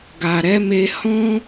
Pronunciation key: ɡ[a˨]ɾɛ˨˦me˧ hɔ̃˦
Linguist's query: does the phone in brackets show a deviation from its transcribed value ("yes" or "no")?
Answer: no